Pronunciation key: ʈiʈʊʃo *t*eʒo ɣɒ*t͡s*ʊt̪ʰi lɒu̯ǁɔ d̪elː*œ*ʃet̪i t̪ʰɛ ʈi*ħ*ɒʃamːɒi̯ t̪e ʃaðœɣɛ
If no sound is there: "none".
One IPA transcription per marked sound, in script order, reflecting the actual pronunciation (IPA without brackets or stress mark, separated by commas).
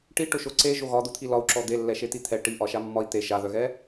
ǀ, d̪, ɛ, ʔ